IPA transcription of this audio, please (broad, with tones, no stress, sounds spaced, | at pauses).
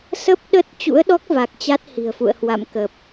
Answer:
s ə˦˥ p̚ ɗ ə˦˥ t̚ t͡ɕ ṵ˧˥ ə̯ ɗ ɔ˦˥ k̚ v a˨˩ k̚ t͡ɕ a˦˥ t̚ h i̤˨˩ ə̯ f ṵ˧˨ ə̯ h w a̰˧˨ m k ə˨˩ p̚